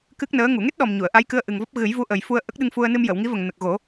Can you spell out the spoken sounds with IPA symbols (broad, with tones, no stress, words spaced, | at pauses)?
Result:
kɨ˦˥k̚nəː˧˥ ŋu˨˩˨ŋe˦˥t̚ɗɔ˨˩m ɲu˨˩˨ə̯ ʔa˧˥jkɨ˧ə̯ʔɨ˨˩ŋvɔ˦˥p̚ ɣɨ˨˩˦jvu˧˥ʔə˨˩j fu˧ə̯ʔə˦˥k̚ɗɨ˧ŋfu˧ə̯ nɨ˧mjə˨˩˨wŋi˧˥və˨˩ŋ nə˨˩k̚ɣo˨˩˦